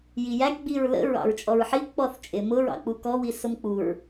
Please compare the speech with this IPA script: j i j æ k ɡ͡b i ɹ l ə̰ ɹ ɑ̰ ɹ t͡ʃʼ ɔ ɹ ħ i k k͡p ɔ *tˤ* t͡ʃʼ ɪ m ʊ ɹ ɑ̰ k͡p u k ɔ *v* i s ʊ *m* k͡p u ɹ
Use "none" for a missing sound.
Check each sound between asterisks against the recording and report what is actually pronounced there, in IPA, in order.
θ, w, m

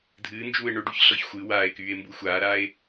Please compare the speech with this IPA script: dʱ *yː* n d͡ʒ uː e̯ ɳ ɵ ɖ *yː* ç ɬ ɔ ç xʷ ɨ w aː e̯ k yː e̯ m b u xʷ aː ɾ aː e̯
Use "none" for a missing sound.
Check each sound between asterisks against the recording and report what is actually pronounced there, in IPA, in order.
ɨː, y

